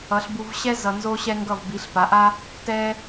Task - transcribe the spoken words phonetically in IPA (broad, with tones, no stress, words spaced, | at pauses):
ʌ˨˦ɬbu˧vɕɛ˦ zʌ˧nzo˦ɕɛ˦ŋɡʌ˦˨v bi˨˦ɬ pa˨˦ʔa˦ | tɛ˦